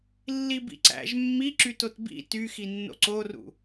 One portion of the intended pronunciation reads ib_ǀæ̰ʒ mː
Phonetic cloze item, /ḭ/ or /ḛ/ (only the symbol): ḭ